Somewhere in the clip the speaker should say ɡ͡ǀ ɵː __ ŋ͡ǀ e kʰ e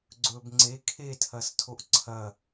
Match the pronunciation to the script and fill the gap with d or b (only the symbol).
b